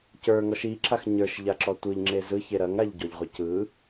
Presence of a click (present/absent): present